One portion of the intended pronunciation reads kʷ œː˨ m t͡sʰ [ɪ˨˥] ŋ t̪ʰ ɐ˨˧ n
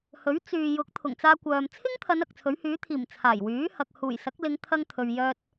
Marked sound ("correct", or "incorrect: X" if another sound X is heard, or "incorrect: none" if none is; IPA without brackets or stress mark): incorrect: ɪ˥